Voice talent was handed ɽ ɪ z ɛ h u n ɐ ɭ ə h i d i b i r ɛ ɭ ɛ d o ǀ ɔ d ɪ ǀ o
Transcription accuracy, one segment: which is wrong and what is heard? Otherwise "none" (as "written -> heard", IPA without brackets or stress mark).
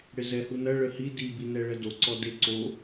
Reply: r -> n